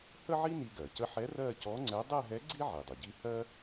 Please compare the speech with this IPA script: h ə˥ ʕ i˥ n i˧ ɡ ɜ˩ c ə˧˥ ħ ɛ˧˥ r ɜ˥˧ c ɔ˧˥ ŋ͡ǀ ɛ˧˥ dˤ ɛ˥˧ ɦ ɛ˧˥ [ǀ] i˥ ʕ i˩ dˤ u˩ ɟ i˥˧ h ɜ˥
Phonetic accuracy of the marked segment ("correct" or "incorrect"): incorrect